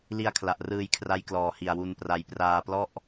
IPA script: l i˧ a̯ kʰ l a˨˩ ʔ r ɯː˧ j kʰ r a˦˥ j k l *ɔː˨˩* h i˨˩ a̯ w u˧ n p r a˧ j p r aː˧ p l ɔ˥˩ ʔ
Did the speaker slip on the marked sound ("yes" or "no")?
no